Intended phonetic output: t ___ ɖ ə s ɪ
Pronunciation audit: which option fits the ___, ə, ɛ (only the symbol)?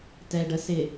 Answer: ɛ